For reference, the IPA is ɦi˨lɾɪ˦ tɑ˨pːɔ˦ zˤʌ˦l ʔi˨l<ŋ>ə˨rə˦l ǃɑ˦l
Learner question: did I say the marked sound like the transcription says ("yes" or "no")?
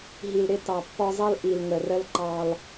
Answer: yes